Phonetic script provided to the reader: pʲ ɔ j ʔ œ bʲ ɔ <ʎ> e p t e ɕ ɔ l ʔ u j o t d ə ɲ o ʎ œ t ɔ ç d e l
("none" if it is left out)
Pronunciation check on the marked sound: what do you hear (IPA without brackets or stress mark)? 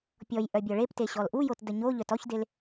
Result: ɭ